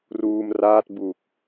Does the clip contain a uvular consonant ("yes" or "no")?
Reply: no